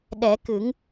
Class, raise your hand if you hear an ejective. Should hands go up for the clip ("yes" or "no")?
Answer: no